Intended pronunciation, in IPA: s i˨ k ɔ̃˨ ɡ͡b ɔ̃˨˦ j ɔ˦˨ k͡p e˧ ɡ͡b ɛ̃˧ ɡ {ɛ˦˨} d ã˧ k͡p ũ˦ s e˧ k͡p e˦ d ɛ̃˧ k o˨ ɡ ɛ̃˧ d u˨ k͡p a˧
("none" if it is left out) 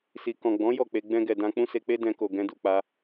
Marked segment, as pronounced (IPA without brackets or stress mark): ɛ˨